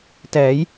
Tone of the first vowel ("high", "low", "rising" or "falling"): rising